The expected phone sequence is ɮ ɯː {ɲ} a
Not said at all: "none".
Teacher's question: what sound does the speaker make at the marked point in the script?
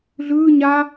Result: ɲ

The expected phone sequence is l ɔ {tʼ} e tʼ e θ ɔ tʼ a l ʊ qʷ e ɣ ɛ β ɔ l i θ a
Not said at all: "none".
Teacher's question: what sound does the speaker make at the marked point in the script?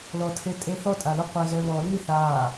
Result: tʰ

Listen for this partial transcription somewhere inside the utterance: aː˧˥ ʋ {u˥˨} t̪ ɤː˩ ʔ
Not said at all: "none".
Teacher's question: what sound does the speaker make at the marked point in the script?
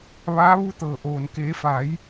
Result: u˧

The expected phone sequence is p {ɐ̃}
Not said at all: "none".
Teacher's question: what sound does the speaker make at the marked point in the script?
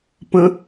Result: ə̃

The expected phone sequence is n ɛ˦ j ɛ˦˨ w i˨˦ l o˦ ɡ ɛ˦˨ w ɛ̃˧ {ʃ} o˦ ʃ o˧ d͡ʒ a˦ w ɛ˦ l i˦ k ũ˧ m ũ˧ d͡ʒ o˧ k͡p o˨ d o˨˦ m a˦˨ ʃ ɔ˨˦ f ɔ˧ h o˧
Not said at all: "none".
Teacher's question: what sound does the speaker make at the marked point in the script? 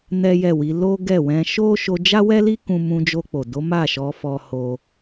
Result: ʃ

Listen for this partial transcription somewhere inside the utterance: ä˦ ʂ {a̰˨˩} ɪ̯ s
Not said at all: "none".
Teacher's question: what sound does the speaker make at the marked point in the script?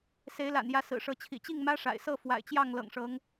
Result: a̰˨˩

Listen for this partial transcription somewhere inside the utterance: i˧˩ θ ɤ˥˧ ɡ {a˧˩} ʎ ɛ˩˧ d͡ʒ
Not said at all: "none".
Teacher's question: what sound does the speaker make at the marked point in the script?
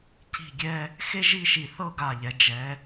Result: a˧˩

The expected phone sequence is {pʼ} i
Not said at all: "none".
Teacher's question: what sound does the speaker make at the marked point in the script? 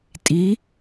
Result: tʼ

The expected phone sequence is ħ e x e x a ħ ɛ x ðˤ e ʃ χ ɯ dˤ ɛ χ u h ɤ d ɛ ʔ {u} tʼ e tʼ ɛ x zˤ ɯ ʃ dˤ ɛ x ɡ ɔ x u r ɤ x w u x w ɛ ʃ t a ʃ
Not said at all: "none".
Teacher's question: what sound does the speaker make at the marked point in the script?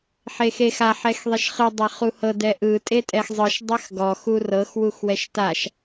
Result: ɯ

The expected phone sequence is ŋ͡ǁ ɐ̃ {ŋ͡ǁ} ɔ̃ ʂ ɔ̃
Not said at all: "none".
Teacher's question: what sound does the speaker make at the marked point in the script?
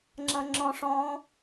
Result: ŋ͡ǁ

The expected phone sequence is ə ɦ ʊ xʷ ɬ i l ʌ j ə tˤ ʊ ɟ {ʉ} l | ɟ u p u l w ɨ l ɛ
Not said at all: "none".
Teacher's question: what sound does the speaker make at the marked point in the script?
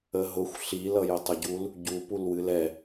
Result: u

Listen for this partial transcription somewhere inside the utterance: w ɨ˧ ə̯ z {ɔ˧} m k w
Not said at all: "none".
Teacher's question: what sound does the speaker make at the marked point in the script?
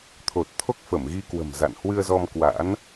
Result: ɔ˧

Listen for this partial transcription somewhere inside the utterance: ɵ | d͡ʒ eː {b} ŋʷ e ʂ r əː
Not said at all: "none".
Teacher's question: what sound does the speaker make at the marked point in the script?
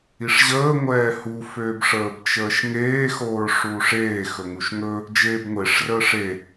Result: b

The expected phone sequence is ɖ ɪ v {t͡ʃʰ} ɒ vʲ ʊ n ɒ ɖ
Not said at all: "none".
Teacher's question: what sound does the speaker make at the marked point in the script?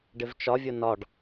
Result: t͡ʃ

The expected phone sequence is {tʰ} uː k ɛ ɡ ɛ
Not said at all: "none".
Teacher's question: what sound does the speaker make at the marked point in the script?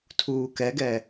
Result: tʰ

